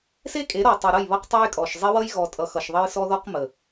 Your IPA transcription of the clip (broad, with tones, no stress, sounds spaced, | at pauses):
s e˦ kʼ e˨˦ ɾ ɔ˨ tˤ ʌ˨ ɾ ʌ˦˨ j β ʌ˦ q tˤ e˦ j kʼ ɔ˨ ʃ zˤ e˦ w ʌ˦ j ɣ ɔ˨ tʼ ʌ˨ x ʌ˨ ʃ ðˤ ʌ˦ j s ɔ˦ ð ɔ˦ q m ə˨